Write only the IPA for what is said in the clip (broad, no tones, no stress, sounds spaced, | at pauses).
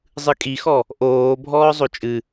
zˤ ɨ kʼ i x ɔ | ʔ oː bʱ ɔː zˤ o t͡ʃʼ ɨ